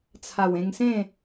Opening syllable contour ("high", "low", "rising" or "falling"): low